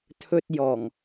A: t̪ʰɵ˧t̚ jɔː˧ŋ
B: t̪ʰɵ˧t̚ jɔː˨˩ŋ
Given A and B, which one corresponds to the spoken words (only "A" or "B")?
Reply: B